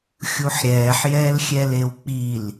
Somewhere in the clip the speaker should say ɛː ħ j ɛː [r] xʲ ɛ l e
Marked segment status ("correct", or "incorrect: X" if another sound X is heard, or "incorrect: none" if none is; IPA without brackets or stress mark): incorrect: l